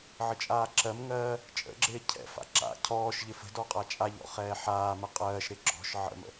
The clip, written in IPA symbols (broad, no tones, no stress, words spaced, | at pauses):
ʕət͡ʃʼaːǁɜmŋɜː | t͡ʃʼə̰ɡ͡ǁɪː cʰɛ̰fa̰ ǁa̰ cʰɔːʃʎɪ fə̤ dɔqʼat͡ʃʼaʎɔ̰ χɛːħaːmə qʼɜːʃɾɪ ɡ͡ǁɔ̤ʃ ʕə̰mə̰